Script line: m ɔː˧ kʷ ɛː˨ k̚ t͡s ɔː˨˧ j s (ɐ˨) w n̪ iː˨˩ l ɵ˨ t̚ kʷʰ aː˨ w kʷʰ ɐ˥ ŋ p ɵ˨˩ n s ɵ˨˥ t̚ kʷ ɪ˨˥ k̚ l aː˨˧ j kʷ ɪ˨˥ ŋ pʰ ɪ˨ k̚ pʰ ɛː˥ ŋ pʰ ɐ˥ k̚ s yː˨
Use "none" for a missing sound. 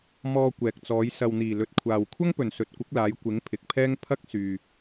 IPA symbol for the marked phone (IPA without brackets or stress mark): ɐ˨